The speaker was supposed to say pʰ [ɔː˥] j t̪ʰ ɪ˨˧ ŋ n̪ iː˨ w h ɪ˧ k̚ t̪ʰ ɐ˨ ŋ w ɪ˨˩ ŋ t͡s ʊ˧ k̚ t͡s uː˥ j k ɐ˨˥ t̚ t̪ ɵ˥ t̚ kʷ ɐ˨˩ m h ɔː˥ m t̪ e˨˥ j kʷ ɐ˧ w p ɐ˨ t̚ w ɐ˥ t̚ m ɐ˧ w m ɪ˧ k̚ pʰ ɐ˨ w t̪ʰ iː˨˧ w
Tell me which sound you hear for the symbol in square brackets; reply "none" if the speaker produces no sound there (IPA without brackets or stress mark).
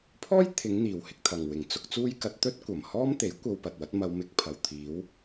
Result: ɔː˥